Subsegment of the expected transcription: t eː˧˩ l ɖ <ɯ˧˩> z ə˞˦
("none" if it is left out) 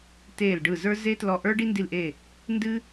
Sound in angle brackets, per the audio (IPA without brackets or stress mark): ɯ˧˩